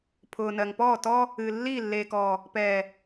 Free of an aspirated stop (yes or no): no